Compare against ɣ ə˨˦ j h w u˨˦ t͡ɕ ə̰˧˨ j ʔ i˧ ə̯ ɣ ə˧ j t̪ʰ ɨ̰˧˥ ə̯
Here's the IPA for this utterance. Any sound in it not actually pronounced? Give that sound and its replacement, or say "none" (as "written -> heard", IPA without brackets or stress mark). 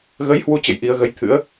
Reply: none